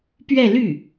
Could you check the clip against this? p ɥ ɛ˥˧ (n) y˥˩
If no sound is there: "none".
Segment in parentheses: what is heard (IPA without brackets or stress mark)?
l